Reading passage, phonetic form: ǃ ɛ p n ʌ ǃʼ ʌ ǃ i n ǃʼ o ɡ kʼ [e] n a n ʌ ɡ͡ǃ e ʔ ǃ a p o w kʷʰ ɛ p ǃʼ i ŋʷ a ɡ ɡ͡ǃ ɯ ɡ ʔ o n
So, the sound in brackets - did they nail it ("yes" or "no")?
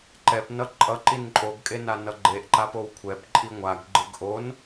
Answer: yes